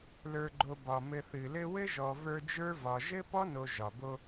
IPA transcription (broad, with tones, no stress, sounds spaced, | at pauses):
l ə˞˨ ɡ͡ǃ o˨ b ɒ˩ m ɘ˨ θ ɨ˩ l ɘ˦ w ɘ˥ ʒ ɔ˨ v ə˞˦ d͡ʒ ə˞˥ v ɒ˨ ʒ ɘ˥ p ɔ˥ n o˨ ʒ ɒ˩ b o˦